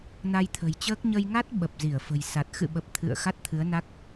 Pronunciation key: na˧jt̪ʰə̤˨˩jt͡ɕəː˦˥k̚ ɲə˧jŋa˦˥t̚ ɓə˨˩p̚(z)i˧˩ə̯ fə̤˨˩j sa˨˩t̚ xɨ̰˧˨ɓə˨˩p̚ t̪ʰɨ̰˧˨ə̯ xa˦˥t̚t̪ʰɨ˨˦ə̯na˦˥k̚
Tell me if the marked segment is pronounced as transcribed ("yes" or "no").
yes